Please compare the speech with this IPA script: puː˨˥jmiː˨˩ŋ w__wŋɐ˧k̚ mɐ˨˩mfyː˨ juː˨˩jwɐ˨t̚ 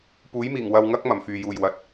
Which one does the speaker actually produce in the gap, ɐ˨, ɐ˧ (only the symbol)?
ɐ˨